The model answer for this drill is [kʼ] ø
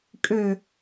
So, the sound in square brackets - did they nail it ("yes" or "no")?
yes